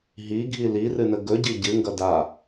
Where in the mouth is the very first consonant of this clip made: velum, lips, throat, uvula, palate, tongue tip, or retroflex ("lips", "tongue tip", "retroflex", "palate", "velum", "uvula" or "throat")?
throat